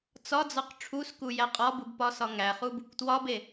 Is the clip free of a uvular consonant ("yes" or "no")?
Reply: no